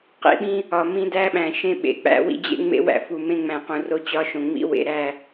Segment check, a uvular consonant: present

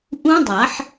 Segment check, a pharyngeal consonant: present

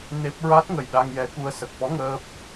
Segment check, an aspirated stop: absent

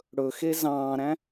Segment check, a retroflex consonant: present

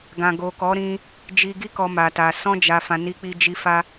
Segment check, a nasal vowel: present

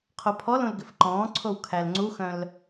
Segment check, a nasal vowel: present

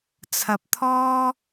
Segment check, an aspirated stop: present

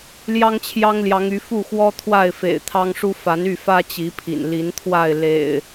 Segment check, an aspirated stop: present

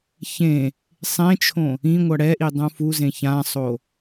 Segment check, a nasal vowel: present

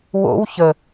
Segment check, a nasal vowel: absent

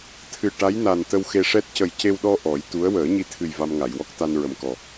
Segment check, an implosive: present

